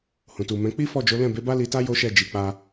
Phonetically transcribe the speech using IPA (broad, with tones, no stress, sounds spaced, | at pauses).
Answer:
h ũ˨ t u˨ m ɛ̃˨˦ k͡p i˦ f ɔ˦˨ d͡ʒ o˨˦ l ɛ̃˦˨ b e˨˦ b a˦ l i˧ t a˦ j o˦ ʃ ɛ˦˨ d͡ʒ i˨ k͡p a˧